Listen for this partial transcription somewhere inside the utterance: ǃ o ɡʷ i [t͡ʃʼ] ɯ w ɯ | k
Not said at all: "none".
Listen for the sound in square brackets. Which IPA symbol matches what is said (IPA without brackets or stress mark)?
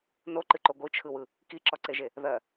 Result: t͡ʃʰ